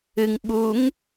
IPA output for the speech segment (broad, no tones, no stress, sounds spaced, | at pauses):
ɨ ŋ ɓ u ŋ